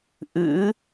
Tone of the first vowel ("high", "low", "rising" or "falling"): rising